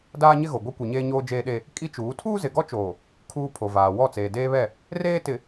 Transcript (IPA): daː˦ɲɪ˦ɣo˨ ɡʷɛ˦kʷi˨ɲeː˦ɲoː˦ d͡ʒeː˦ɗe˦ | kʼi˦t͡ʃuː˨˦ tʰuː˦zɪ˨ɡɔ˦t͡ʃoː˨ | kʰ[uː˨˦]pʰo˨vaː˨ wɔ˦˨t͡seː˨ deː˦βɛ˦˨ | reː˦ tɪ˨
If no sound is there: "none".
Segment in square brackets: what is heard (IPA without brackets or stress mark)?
uː˦